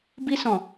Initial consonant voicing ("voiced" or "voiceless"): voiced